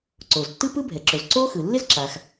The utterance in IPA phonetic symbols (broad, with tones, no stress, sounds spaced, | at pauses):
ǀ o˩ z tː ɯ˥ p ɯ˥ bʱ ɛ˩ ǁ o˩ z ǀ o˥ x ɯ˩ lː ɪ˥ z ǁ a˩ x